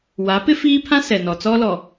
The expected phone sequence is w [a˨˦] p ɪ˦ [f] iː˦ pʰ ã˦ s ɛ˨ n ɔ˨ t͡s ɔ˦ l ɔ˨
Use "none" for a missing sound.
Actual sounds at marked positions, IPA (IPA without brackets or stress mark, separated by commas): a˨˦, f